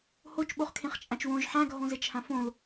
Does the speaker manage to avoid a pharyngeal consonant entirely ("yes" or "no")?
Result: no